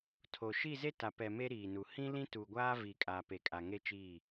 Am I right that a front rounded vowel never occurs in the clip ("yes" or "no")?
yes